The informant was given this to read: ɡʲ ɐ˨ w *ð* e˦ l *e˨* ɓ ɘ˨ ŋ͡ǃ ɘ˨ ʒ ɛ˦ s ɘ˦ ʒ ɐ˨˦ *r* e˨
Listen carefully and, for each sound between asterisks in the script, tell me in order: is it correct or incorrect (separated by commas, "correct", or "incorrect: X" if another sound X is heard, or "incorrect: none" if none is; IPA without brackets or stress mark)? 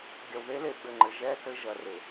correct, correct, correct